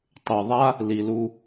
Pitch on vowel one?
low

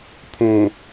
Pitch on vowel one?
low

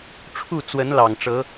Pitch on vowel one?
falling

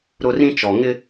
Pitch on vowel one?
high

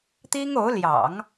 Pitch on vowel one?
high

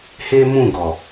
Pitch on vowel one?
high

